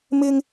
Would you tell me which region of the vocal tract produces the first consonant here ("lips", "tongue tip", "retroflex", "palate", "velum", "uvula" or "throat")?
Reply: lips